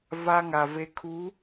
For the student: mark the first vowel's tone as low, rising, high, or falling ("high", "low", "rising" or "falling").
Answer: high